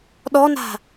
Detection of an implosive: present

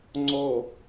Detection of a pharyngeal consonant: absent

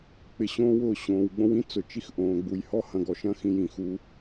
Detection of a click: absent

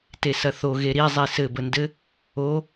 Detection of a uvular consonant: absent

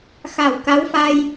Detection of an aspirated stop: absent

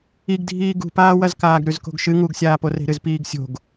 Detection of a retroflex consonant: absent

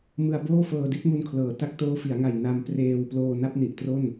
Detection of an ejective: absent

